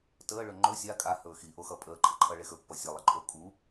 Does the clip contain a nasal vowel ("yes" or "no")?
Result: no